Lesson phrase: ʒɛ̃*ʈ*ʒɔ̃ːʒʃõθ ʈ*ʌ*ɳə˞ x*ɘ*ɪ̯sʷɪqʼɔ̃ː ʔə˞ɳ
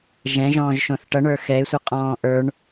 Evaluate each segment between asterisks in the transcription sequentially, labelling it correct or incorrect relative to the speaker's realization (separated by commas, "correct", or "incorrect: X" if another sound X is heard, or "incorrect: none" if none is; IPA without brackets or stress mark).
incorrect: none, correct, incorrect: ɛ